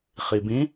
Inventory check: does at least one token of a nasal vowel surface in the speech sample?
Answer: yes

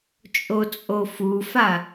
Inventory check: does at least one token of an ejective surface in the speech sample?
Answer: yes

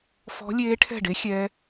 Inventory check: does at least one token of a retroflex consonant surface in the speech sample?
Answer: yes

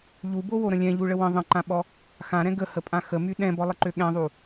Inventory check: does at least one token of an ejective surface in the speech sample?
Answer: yes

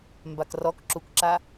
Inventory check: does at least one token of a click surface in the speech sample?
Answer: yes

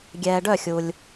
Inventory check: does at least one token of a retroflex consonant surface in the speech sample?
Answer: yes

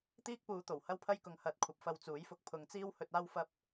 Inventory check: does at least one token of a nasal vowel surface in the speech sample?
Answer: no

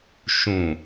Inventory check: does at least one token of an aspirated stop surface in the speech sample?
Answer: no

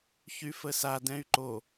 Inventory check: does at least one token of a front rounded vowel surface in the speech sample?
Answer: yes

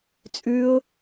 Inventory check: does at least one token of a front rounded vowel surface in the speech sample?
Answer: no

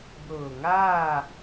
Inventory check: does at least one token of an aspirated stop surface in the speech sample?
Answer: no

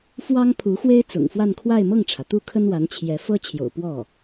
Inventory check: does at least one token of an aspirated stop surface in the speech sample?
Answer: yes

